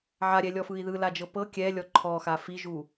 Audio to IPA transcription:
ʕ a ɾʲ ɛ lʲ ɔ f ɯ i̯ ð ɯ l a d͡ʒ ɤ p ɤ kʲ ɛ lʲ ɔ ǃʰ ɔ x a f i ʒ u

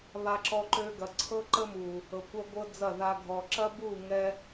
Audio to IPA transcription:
β a˧ ǁ ɔ˧ ǃ ø˧ ɡ ɐ˨ ǀʰ ɤ˦ ǃ ə˦ m u˨ | ɤ˨ kʷ ɐ˦ ɡʷ ɤ˦ d͡z ɐ˦˨ ð a˧ ɡʱ ɔ˨ ǁ ɐ˦ b u˦˨ ŋ ɛ˦

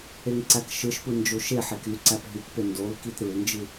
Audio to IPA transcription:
e ŋ ǀ æ k ʃ ɯ ʃ p ɯ n d͡ʒ o ʃ e ħ e k y ǀ æ p ɦ y k p e n d o l k i t ɾ ɯ l n d͡ʒ ɯ

